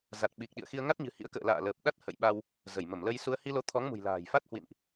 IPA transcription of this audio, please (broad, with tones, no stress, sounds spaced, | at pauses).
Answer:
z a˨˩ t̚ ɓ i˨˩ k̚ ɗ ḭ˧˨ ə̯ x i˧ ə̯ ŋ a˦˥ t̚ ɲ ɨ̤˨˩ h ḭ˧˥ ə̯ k ə̰ː˧˨ l a̰ː˧˨ l əː˨˩ p̚ ɗ a˦˥ t̚ h ə̰˧˨ j ɓ a˧ w | z ə˧˩ j m ə˧˩ m l ə˧ j s u˧ ə̯ h i˧ l o˨˦ t̪ʰ ɔ˨˦ ŋ m ṳ˨˩ j l a̤ː˨˩ j f a˦˥ t̚ h w ḭ˧˨ n ʔ